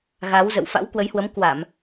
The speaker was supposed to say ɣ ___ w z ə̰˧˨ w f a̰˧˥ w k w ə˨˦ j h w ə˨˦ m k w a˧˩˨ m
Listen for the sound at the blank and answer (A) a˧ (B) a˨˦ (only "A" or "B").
B